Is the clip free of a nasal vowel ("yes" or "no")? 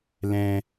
no